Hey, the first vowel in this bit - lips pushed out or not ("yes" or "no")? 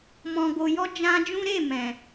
yes